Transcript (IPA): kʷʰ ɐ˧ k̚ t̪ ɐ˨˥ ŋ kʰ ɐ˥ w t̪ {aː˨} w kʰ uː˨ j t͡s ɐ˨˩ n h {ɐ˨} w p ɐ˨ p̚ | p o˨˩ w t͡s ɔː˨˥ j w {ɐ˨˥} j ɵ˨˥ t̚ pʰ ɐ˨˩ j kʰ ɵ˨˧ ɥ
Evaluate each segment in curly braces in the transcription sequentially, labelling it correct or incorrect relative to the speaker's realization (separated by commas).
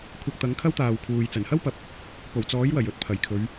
correct, incorrect, incorrect